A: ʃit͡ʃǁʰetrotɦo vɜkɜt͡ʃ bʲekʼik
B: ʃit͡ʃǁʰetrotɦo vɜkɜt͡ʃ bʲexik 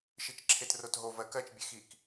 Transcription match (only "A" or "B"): B